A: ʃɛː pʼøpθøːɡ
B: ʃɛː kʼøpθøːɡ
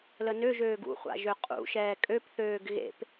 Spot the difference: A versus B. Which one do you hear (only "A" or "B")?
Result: B